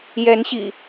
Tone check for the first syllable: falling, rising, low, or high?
rising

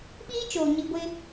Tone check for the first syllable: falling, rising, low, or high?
high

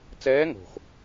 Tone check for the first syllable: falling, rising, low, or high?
rising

